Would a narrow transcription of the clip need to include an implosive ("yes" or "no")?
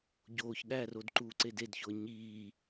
yes